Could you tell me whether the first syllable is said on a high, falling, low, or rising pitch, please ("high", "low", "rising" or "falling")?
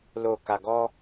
low